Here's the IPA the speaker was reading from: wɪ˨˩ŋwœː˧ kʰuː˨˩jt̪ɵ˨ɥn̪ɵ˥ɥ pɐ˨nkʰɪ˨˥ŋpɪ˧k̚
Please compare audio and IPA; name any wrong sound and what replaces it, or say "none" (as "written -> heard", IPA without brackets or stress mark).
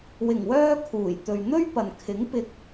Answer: none